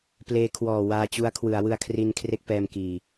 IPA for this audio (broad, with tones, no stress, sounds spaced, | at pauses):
p l eː˦˥ kʰ w ɔː˨˩ w aː˧ t͡ɕ u˦˥ a̯ kʰ w ɯ˩˦ a̯ w ɯ˧ a̯ kʰ r i˧ n kʰ r e˥˩ k̚ p ɛː˧ m k iː˨˩